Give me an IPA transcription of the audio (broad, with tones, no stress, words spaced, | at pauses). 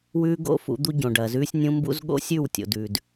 wʉː˦ɡo̰˦ fṵ˨˦d̪u˦ ɟõ˨ɖɐː˨zʉː˦sʲnʲũ˦ mbṵ˦z ɠo̰˦sʲʉ˦˨wtʲo̰˨dʉ˨d